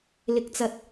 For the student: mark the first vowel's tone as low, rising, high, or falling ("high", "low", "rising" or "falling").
low